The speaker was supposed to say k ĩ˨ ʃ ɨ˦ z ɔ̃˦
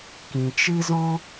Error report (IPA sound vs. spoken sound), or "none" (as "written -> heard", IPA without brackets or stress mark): ʃ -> t͡ʃ